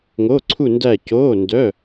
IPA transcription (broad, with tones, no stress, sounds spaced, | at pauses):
ŋ o˧˥˧ ǀʰ u˥˧ n d æ˥˧ c oː˧˥˧ n d œ˧˥˧